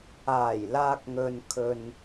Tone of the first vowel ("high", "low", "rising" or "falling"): low